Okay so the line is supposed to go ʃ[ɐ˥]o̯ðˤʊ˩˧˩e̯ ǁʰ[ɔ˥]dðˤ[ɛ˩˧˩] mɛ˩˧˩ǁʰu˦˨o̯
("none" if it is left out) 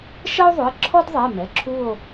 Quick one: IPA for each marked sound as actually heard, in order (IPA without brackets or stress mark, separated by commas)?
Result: ɐ˥, ɔ˥, ɛ˩˧˩